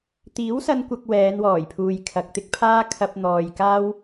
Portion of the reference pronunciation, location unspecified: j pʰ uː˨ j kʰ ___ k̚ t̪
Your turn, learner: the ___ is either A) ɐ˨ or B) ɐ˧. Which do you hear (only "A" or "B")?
A